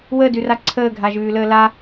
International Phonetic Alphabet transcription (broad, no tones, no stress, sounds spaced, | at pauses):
w əː d ʉ r a ǀʰ əː ɡʱ a ʒ ʉː l əː l a